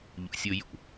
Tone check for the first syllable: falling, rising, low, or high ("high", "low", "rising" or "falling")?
low